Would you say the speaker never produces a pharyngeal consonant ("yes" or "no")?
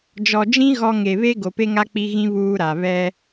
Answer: yes